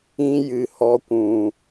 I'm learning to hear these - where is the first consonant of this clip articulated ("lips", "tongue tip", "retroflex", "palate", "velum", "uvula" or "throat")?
palate